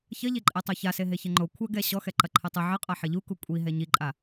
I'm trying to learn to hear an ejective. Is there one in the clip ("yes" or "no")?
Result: yes